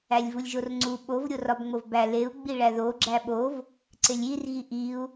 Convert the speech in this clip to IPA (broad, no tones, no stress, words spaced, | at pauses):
ælʲvulʲʒorŋ͡ǀu ɓov ɾʲorɒbŋ͡movbæ leu̯ ɡ͡biɭæðo ɡ͡ǁæɓov | ǀelʲirɣi ʔiu̯